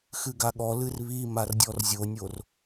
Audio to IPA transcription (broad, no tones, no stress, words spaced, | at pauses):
xɨɡaɠɔ lɨrβi mardʲɔrzʲonʲor